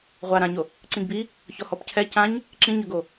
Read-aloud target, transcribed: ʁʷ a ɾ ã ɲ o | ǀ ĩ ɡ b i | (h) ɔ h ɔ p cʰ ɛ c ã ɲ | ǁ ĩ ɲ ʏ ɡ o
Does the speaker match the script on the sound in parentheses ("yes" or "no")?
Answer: no